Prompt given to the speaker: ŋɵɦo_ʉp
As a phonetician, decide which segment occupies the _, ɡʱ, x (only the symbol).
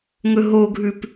ɡʱ